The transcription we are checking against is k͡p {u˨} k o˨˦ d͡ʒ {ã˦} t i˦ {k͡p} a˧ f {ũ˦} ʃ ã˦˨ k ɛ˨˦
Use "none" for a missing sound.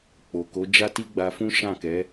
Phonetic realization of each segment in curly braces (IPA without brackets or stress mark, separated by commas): o˨, a˦, ɡ͡b, ũ˦